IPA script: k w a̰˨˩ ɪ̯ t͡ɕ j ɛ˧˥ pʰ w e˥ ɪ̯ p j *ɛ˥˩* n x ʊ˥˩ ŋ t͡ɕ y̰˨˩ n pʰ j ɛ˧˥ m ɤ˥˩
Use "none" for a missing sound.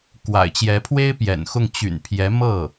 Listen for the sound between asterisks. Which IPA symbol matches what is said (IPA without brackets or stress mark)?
ɛ̰˨˩